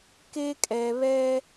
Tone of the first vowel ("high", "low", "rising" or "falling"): high